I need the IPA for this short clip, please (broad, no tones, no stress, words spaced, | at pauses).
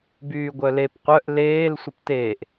byːɡʷœlep qʷœʔ leːl sʷəpteːʔ